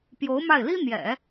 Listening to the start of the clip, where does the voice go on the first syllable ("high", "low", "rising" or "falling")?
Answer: rising